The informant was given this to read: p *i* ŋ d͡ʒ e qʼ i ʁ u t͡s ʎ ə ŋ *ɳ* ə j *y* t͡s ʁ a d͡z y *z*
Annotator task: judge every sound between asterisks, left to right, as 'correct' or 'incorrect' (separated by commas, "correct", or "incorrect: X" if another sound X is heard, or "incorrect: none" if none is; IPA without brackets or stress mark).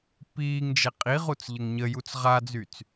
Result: incorrect: iː, incorrect: ɲ, incorrect: u, incorrect: t͡s